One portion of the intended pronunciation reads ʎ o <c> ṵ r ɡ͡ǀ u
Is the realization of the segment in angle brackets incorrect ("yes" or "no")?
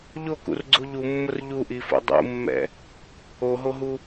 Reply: yes